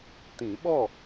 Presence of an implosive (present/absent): present